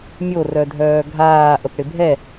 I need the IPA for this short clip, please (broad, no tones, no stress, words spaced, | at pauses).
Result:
mʲorœdʱœː ɡʱaː ʔəpɽɪbʱɛ